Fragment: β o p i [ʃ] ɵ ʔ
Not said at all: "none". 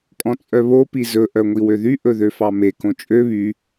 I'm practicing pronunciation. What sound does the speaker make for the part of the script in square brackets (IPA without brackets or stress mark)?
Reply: z